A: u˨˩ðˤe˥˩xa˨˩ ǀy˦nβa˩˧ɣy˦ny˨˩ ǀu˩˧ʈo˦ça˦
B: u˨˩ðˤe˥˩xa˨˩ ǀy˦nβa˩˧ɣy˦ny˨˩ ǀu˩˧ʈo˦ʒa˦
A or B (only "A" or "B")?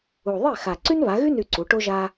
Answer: B